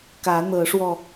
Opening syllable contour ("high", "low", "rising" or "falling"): rising